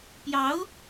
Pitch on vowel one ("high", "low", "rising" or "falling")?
rising